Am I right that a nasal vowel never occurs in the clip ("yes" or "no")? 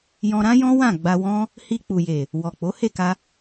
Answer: no